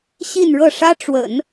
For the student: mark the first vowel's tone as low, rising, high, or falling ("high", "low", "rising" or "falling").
falling